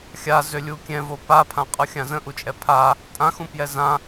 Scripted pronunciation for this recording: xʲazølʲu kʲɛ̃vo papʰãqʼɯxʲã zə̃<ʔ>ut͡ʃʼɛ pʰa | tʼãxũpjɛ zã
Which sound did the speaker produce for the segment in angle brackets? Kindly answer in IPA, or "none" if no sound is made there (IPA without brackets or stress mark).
ʔ